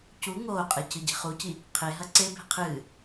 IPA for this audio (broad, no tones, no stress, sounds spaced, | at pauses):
c u ŋ oː qʼ e c ɨ ɟ e̤ χ u c i | qʰ e ɦ ɐ ǀ e b e̤ qʰ ɨː